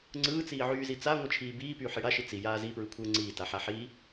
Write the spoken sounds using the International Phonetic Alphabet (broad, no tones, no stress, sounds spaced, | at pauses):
ŋ͡ǀ ɯː t͡s iː ʕ yː z i t͡s a ŋʷ ɯ t͡ʃʰ iː b iː p yː ħ i ɽ a ʃ i t͡s i j aː z i p ɹ ɯ kʷʰ ɯː ŋ͡ǀ iː t a ħ a ħ iː